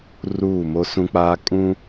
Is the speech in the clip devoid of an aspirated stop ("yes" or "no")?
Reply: yes